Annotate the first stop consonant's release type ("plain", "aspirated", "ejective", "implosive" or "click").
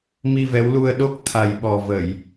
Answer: implosive